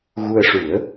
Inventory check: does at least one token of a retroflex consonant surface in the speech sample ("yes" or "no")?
yes